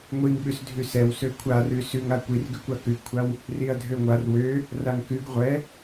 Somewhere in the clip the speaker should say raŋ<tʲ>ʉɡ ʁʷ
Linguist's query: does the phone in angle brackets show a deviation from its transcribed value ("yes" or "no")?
yes